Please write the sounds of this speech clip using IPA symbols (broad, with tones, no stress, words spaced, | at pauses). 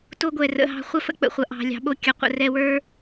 to˧ɡʷɛ˨ rə̰˨ɦɑ̤˧ χʷɐ˦fə̰˦k͡pə̰˨χʷɐ˨ ʔɑ̤˨ lʲɑ̤˨ɓo˧kʲɐ˨qʷə̰˨ rɛ˧wə˞˦